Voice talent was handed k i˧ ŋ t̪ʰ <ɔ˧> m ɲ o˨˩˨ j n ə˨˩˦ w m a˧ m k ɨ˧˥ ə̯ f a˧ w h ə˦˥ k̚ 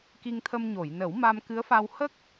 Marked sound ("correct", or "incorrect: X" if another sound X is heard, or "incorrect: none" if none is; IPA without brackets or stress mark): incorrect: ə˧